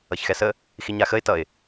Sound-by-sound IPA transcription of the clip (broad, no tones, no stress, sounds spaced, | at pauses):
ʌ ç x ɛ s ə | x i ɲ a x ə ɪ̯ t ʌ ɪ̯